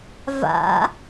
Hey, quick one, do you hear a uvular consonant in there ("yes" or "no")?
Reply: no